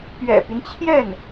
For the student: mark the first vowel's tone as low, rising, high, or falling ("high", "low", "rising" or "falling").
low